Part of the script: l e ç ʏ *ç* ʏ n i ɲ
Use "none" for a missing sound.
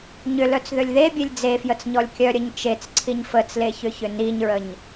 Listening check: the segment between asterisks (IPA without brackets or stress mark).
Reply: ç